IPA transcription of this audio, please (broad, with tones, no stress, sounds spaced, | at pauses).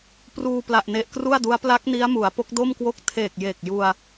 p r uː˧ p l a˨˩ ʔ n e˨˩ ʔ k r u˥˩ a̯ d u˦˥ a̯ p l a˦˥ k̚ n i˦˥ a̯ m u˩˦ a̯ p o˦˥ k̚ d o˥˩ m k w o˥˩ k̚ tʰ eː˨˩ k̚ j e˨˩ k̚ j u˧ a̯